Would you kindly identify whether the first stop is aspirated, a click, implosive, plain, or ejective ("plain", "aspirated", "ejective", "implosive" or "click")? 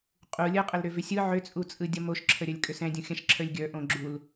ejective